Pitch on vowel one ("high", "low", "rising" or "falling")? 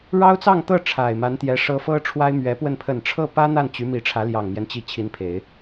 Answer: high